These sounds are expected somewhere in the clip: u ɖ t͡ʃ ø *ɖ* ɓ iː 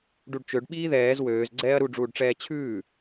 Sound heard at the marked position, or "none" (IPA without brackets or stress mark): ɖ